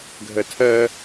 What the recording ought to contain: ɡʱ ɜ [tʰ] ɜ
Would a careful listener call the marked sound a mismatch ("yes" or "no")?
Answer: no